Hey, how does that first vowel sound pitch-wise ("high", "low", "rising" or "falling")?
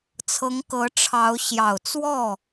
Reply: rising